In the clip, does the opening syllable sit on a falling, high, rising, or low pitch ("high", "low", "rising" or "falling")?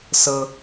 high